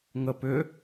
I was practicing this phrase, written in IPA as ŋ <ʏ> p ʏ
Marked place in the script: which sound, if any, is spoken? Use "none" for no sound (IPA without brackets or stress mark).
ə